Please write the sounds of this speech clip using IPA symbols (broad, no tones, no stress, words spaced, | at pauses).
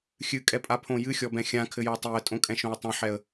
xʲɨkʼɛpʼapʰõ jɨxʲɔbɛ̃ xʲãkʰɘjɔ tˤiə̯tʼõkʼɛ̃ʃõə̯ tˤɛ̃ħɛə̯